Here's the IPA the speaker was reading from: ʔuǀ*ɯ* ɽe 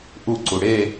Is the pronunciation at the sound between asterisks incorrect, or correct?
incorrect: u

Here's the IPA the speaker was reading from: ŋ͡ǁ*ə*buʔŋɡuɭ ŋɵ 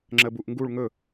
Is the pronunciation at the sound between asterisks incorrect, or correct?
correct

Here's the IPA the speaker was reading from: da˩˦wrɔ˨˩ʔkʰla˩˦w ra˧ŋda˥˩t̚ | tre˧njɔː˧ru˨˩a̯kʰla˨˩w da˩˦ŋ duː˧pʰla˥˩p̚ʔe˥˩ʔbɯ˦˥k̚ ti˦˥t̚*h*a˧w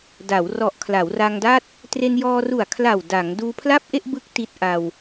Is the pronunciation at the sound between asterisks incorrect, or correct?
incorrect: ʔ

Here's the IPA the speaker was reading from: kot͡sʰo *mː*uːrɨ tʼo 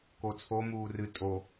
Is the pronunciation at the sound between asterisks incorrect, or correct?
incorrect: m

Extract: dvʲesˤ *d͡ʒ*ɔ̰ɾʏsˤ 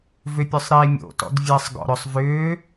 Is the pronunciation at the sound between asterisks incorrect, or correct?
incorrect: ɡ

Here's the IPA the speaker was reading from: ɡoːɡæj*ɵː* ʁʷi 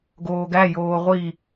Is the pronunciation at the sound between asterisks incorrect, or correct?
incorrect: oː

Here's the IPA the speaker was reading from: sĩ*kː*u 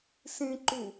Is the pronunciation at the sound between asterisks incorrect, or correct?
incorrect: ǃ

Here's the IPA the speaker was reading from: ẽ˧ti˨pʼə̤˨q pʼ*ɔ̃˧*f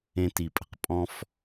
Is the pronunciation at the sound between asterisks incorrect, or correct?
correct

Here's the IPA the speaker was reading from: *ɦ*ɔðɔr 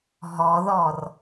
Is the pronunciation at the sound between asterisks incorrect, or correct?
correct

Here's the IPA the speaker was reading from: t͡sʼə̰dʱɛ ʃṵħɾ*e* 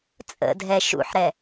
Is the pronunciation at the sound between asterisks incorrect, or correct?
incorrect: ɛ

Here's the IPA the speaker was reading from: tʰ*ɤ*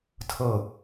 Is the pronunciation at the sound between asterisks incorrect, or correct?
correct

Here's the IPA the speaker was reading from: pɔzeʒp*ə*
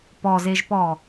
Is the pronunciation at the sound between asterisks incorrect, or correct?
incorrect: ɔ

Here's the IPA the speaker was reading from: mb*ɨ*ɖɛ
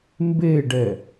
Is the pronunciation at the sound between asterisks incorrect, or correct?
incorrect: e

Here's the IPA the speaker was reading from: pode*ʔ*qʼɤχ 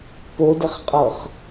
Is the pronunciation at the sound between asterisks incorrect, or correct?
incorrect: χ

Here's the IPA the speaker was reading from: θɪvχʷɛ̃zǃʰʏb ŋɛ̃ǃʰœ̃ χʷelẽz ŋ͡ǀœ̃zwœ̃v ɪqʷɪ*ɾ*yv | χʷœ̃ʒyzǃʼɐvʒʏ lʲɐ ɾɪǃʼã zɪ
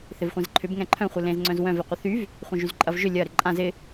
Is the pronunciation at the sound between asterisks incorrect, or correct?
incorrect: θ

